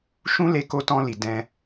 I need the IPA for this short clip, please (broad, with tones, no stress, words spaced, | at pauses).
ʃũ˦ le˧ko˧tɔ̃˧li˨ dɛ̃˧